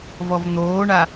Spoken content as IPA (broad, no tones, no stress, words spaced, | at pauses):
vɔvn̪oːɳa